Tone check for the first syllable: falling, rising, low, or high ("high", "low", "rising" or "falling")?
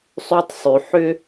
high